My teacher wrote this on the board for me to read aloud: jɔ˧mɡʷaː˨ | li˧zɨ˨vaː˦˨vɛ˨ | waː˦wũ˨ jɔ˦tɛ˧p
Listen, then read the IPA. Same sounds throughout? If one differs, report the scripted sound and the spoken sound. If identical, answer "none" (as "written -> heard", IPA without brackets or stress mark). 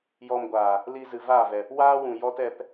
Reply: none